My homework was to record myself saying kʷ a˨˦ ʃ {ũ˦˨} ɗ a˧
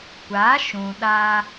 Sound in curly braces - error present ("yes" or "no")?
yes